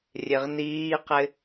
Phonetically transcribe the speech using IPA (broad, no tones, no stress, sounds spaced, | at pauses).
rʲ e ʁ n iː q ɪ